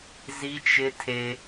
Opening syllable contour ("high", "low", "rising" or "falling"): high